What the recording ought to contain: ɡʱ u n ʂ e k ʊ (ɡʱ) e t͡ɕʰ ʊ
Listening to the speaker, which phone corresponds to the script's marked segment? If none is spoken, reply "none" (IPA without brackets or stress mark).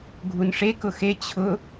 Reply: x